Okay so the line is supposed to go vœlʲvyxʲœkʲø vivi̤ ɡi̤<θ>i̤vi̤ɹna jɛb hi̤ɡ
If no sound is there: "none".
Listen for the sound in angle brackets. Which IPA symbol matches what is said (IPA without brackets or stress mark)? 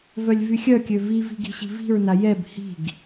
ɕ